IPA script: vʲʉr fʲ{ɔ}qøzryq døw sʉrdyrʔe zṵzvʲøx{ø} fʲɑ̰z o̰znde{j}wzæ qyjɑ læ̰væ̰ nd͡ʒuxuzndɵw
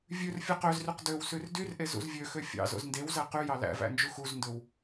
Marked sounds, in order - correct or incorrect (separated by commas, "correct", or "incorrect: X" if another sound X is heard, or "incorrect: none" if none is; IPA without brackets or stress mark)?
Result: correct, correct, incorrect: none